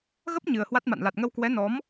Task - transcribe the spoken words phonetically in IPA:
ɣ ə˦˥ p̚ ɲ ɨ˨˩ ə̯ h w a˦˥ t̚ m a̰˧˨ n l a˨˩ t̚ ŋ ə˧ w k w ɛ˨˦ n ɔ˨˦ m

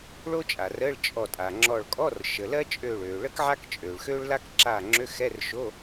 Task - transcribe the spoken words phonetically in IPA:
ɭ o˥ t͡ʃʼ a˩ r əː˧˥˧ ɭ t͡ʃʼ ɔ˧˩ tʼ a˩ ŋ͡ǁ ɔ˧˩ ɭ kʼ ɔ˧˥˧ r ʃ ə˩ l ɜ˥ t͡ʃʼ øː˧˩ ɭ øː˩ ɭ ə˥ k ʕ a˥ k t͡ʃʼ øː˩ ɭ x øː˥ ɭ l a˥ k ǁ a˧˩ ŋ͡ǁ ø˧˥˧ x ɛ˧˥˧ r ʃ o˧˥˧

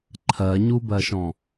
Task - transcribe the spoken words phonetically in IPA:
ǃʰ ɜ ɲ u b ɜ ʃ ɔ̃

